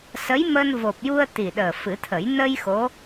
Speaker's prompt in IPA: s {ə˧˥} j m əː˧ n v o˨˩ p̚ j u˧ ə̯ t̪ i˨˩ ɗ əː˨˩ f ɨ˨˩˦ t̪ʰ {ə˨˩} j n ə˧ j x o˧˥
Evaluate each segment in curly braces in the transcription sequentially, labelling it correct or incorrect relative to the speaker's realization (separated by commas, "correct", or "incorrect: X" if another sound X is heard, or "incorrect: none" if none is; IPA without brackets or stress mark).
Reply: correct, incorrect: ə˨˩˦